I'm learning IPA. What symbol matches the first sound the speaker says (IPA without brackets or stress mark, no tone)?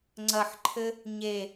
ŋ͡ǀ